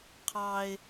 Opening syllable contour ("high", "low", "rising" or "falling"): high